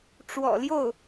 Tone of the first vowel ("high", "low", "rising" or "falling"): low